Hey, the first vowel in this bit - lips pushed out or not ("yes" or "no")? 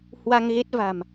no